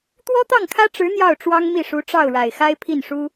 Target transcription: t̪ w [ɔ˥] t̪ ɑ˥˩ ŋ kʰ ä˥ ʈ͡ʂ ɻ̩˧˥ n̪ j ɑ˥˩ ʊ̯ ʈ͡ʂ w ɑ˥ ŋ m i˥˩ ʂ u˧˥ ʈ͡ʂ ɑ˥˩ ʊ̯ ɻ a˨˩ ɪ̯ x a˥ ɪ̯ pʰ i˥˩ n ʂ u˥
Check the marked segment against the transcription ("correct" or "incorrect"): correct